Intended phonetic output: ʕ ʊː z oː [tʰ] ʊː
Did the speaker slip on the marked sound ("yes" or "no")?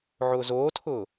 no